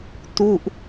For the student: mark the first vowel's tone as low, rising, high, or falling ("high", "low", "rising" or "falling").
falling